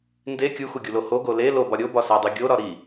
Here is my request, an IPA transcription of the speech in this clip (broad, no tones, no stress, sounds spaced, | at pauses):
n d e kʲ u x u ɡʲ u l o h o ɡ o l e l o b ɒ ɾʲ o b ɒ s æ dˤ i ɡʲ o ɾ ɒ ɾ i